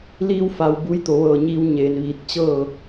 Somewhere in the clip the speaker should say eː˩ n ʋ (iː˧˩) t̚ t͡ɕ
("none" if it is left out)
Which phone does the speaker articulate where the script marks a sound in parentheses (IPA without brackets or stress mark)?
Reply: iː˧˩